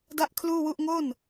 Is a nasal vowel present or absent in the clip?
absent